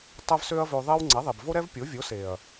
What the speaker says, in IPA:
tˤ ɛ˦ v s ø˦ ɐ̯ v ø˧ ðˤ e˦ w ŋ͡ǀ ɛ˨˦ ðˤ e˨ b v o˦ ɾ ɛ˦ v pʲ o˨˦ vʲ o˨˦ s e˨ ɐ̯

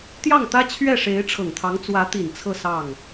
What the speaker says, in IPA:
t̪ j ɑ˥˩ ŋ t̪ ä˥ t͡ɕʰ ɥ ɛ˥˩ ʂ e˧˥ ɪ̯ ʈ͡ʂʰ ɤ˨˩ ŋ t̪ʰ ɑ˧˥ ŋ t͡s w ä˧˥ t̪ i˨˩ n t͡sʰ ɤ˥˧ s ɑ˥˩ ŋ

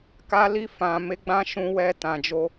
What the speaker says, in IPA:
k a˧ l i˧ f ã˨ m e˨˦ ɡ͡b ã˧ ʃ ũ˧ w ɛ˧ t ã˨ d͡ʒ o˧

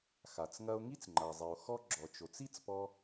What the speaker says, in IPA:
x a˩ t͡s ŋ ɐ˧ o̯ ŋ i˥ t͡s ŋ͡ǃ a˩ zˤ i˩ o̯ x ɔ˥ ɡ͡ǁ ɔ˩ t͡ʃ o˩ t͡s i˥ t͡s p ɔ˧

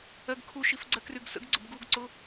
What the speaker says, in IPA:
ɜ ɡ kʰ u ʃ i f ɡ͡ǀ ɜ k r y ɡ s ə̰ ɡ ɡ͡ǀ ʊ b ɡ u ɡ ǀ ʊ

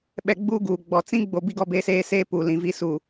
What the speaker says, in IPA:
ɓ ɛ˨ ɡ͡b uː˦ ɡ uː˨ ɡ͡b ɔ˨ t͡s ĩ˦ ɡ͡b o˨ b i˦ ɡ ɔ˦ b e˦ s eː˦ s eː˦ p u˨ l ĩ˨ v i˦˨ s u˨

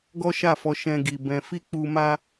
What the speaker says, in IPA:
ɡ ɔ˦ ʃ a˦˨ f ɔ˧ ʃ ɛ̃˧ ɡ i˨ b ɛ̃˧ f i˦ k͡p u˧ m a˦

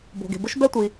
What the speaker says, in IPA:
b o̤˩ ɡ e̤˩ b ʊ˥ ʃ b ɛ˥ tʷ i˩

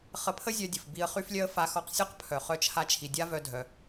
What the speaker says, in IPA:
χ ə˧ pʰ ə˥ zʲ œ˧ dʲ ə˩ f b i˧ ə̯ χ y˥ f lʲ œ˥ ə̯ f a˧ x ɔ˧ q sʲ ɔ˥ q pʰ œ˩ χ œ˧ t͡ʃʰ a˧ t͡ʃʰ i˩ dʲ a˥ v œ˧ dʱ œ˩

